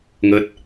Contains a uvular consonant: no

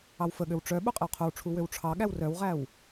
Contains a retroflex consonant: yes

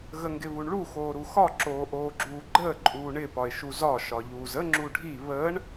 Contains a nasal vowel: no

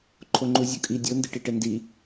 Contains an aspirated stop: yes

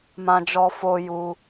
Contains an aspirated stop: no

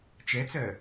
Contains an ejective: no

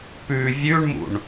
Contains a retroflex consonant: yes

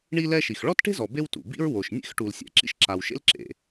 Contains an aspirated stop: no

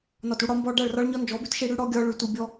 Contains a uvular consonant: no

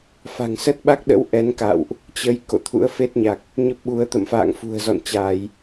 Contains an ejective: no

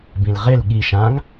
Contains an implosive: yes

